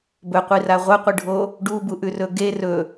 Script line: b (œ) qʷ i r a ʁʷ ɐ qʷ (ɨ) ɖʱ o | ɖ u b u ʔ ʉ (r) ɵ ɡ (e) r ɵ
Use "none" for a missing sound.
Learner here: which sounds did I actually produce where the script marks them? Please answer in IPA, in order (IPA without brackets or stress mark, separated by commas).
ɵ, ɨ, r, e